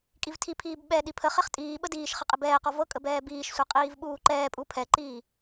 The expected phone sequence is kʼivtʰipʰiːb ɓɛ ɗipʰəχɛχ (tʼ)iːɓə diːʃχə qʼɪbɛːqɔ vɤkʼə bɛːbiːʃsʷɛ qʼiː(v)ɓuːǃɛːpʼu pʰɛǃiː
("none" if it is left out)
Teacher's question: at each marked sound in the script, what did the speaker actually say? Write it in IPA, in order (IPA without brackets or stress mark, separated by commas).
tʼ, v